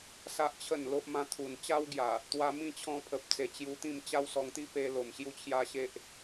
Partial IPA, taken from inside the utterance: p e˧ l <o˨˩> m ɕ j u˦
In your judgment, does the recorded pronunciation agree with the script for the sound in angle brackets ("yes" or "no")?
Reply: yes